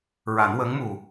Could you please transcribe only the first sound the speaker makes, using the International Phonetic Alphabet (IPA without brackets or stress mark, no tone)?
ɹ